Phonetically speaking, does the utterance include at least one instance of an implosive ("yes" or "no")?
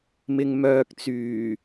no